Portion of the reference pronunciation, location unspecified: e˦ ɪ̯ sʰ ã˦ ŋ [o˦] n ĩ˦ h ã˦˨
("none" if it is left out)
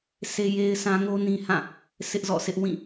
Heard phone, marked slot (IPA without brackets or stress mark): o˦